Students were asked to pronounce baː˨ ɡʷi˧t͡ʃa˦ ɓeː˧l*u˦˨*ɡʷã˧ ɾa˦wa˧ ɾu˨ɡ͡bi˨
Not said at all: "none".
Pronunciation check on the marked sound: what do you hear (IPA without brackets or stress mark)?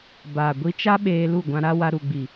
u˦˨